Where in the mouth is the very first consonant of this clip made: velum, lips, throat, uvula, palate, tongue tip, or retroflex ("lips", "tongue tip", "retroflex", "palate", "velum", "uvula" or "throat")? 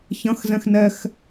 palate